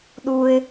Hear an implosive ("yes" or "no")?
yes